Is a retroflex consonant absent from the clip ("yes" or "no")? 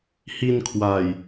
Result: yes